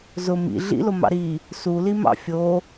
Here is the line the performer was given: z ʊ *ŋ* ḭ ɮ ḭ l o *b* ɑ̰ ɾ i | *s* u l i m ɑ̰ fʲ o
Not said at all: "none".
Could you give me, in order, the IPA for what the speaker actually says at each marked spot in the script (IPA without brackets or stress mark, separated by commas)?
m, m, s